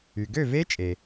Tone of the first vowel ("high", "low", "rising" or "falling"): low